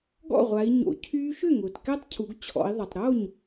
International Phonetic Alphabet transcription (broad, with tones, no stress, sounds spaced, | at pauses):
ɡ ɔ̰˥˩ ʁʷ a˩˧ i̯ ɲ o̰˩˧ cʰ yː˦˥ ʃ ʏ˥˩ ŋ ʊː˩ t k ɛ˦˥ tˤ cʰ u˩˧ ɡ t͡ɕʰ ɔ̰˩˧ i̯ ðˤ ɐ˩ tˤ ɾ o˥˩ ɲ